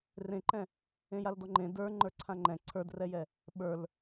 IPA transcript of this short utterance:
rẽǃɛ̃ | ẽjaldɔŋ͡ǃẽ də˞ ŋ͡ǃə˞ǀʰãŋ͡ǃɛ̃ ǀʰə˞drɛjɛ | ɓə˞l

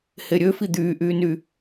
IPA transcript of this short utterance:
heɾʲøfi d̪yːʔyːny

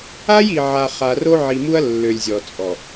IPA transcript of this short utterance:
a˦ji˨ʕa˨ χa˨ro˦ ʕi˨mu˦ɐ̯ lːø˨lʲzʲɔ˨t͡sʼɔ˨

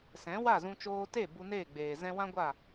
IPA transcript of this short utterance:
sɛ̃˨˦wa˦˨zũ˧ t͡ʃoː˧te˦˨ bu˧neː˦˨ɡ͡beː˨ zɛ̃˧wã˦ɡʷa˦˨

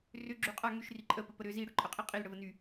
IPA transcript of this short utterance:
rʏɡ͡ǁy qʼa ŋyʃri ǃʼəpəpə ɾʏ ziɽʏǃʼəqʼi qʼilɽəvə ny

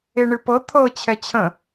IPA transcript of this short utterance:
eɳɨpɤ t̪ʰɤ t͡ɕʰɛt͡ɕʰə̃

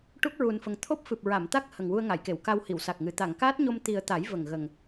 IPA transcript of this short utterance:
ʈu˦˥k̚ɹu˨˩nfə˨˩ŋ t̪ʰo˦˥p̚fɨ˨˩p̚ ɹa˨˩˨mt̪a˦˥k̚ hə˨˩ŋwu˧ə̯ŋa˨˩˨jke˨˩˨w ka˧whi˨˩˨wsa˨˩k̚ŋɨ˨˩ t̪a˨˩˨ŋkaː˦˥t̚ɲo˧m t̪i˨˩ə̯t̪a˨˩˦j və˨˩ŋɣə˨˩ŋ

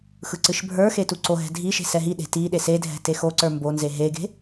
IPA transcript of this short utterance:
xɯǀɨʃbʱə˞xe tuǀoɦɛ̤ dʱiʃe̤ sɛɦiɗe̤ ti ɗesedʱɛ̤ texoǀə˞ mbonze ɦeɡe̤

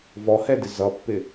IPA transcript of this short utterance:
vɔhɛdɪ zʌpːɪ

